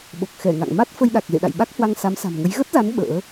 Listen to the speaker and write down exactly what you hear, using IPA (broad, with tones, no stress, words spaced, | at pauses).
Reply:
ɓo˨˩k̚xɛ˧˩ŋa̰˧˨ŋ ma˦˥t̚ fə˧jɗa˨˩k̚ zḛ˧˨ɗa̰˧˨jɓa˦˥k̚ hwa˧ŋsa˨˦msa̤˨˩mŋə˨˦j ɣə˦˥t̚za˨˦n ɓə̰ː˧˥